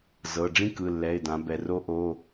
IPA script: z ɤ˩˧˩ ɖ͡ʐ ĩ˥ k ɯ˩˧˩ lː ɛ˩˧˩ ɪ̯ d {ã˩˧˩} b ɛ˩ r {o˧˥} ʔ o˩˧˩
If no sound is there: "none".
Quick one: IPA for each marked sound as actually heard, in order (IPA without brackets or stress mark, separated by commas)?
ã˩˧, o˧˥